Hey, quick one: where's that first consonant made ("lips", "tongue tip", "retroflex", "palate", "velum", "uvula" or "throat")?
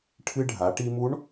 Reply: retroflex